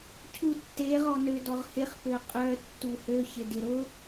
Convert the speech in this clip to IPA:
cʰ u tː e ʁ ɔ n ø d ɔ ʁ h ɪ χ p ø qʼ œ tː u h ø ç ɪ d ɪ ɾ ʊ

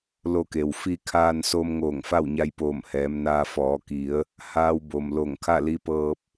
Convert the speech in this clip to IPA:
l o˧ k e˩ w f i˧ kʰ aː˧ n s o˧ m ŋ oː˧˩ ŋ f a˥˨ w ɲ a˧ j p oː˧˩ m h ɛː˩˧ m n aː˧ f ɔː˩˧ k i˩˧ ə̯ | h aː˧ w b o˩ m l o˧˩ ŋ kʰ a˥˨ l i˧˥ p ɤː˧ p̚

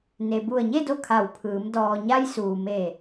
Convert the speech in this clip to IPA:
n e˩ b u˧˩ ə̯ ɲ e˥˨ d o˥˨ kʰ a˧˩ w pʰ ɯː˩˧ m d ɔː˩ ɲ a˧ j s uː˩ m e˧˩

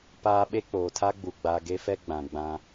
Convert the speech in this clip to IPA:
p aː˦ ɓ e˦ k͡p oː˨ tʰ a˦ ɡ͡b u˨ ɡ͡b a˨ ɡ e˦ f ɛ˦ ɡ͡b ã˨ ɡ͡b ã˦

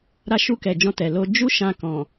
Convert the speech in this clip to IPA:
ɾ a˦ ʃ u˦˨ k ɛ˨ d͡ʒ ɔ̃˧ t ɛ˨ l o˧ d͡ʒ u˦ ʃ ã˧ k ɔ̃˨

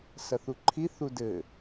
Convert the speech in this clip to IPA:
s ɐ θ u ǃʰ i θ u d ɘ

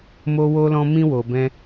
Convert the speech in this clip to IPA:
m o˦ w o˦ l ɔ̃˦ m ĩ˦ w o˧ b ɛ̃˦

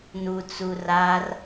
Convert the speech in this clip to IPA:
n u t͡s u r a r

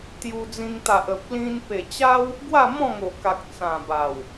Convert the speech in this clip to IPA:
t̪ j u˧ d͡z ĩ˧ ŋ t̪ a˨ ʔ ə˨ p̚ l ĩ˧ n p e˨˩ t͡ɕ a˦ w | ɡ w a˥˧ m ɔ̃˥˧ ŋ o˨˩ k a˨ k̚ t͡s ã˨˩ b a˨˩ w

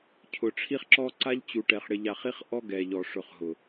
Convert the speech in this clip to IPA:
cʰ ʊ˨ ʈ͡ʂʰ i˦ χ ǁ ɔ˦ ǀ a˦ ʎ t͡ɕ u˨ ʈ ɛ˨ χ ɽ ɪ˨ ʎ a˨ χ i˦ χ ʔ ɔ˦ ɡ ɛ˨ ʎ ɔ˨ ʂ ʊ˨ χ ɦ ʊ˨

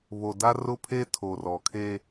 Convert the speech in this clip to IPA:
β o˨ d a˦ r ʊ˦ pʰ e˦ tʰ o˨ r ɔ˨ kʰ e˦

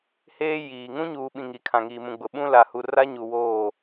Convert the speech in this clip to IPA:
h eː˦ j iː˨ ŋ ũ˦ ɲ uː˨ ɓ ĩ˨ ŋ i˨ kʰ ã˨ ŋ iː˨ m ũ˨ ɡ͡b ʊ˨ ɓ ũ˦ l a˨ h u˨ r a˦ ɲ u˨ w oː˦˨

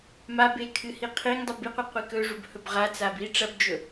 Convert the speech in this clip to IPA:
m a b e kʰ ɨ h i qʰ i ŋ dˤ u b i qʷ ɨ qʷ i k ɵ ʐ u b h ɵ b ʁ a t͡s a b i ʈ͡ʂ ɐ b d͡ʒ ɵ

